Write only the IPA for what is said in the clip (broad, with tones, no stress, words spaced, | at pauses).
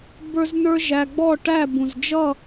bə˞˦znə˞˦ʒæ˧ ɡ͡bɔ˦˨ʈæ˦˨ bũ˨z d͡ʒʌ˦˨